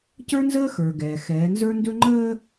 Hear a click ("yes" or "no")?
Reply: yes